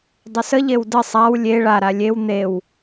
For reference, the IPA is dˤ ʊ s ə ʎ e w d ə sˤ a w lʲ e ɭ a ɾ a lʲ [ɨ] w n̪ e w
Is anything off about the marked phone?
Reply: yes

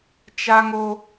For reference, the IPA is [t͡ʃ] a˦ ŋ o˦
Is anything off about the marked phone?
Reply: no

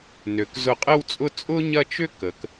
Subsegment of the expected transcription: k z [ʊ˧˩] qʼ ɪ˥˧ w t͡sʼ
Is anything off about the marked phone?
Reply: no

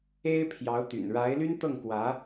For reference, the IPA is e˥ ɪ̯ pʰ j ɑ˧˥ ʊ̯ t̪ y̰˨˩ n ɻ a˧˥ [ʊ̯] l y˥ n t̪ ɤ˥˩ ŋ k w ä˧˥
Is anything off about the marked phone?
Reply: yes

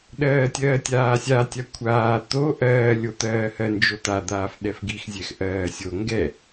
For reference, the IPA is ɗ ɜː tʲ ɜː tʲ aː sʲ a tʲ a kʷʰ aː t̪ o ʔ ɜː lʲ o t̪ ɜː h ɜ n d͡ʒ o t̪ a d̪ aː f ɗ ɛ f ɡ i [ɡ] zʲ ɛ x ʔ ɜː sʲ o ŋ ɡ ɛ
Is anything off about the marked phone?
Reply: yes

